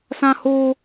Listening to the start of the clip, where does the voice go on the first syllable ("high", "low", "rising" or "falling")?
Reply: high